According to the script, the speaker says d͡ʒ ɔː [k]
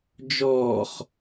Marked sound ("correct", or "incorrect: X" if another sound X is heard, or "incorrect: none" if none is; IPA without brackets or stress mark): incorrect: χ